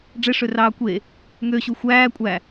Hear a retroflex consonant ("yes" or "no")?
yes